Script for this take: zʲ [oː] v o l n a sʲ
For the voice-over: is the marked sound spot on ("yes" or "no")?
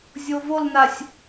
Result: no